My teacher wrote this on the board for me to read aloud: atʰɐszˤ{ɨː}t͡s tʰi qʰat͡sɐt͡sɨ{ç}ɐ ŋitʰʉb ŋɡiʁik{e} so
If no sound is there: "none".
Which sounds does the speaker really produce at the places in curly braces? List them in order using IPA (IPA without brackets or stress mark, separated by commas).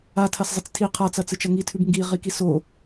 ɨ, t͡ʃ, i